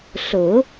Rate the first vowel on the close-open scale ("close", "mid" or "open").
close